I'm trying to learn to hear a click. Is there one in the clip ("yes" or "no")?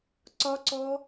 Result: yes